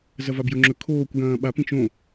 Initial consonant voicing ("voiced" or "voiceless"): voiced